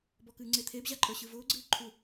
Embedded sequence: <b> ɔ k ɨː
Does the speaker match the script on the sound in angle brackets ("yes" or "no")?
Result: yes